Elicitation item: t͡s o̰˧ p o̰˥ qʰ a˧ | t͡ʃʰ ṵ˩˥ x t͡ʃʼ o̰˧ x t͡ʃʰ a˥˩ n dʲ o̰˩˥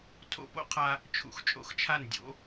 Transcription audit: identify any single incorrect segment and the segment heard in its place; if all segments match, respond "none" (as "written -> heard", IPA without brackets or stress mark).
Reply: t͡s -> tʰ